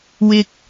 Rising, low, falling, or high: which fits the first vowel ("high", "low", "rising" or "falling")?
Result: low